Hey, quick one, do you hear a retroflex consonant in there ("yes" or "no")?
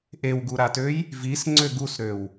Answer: no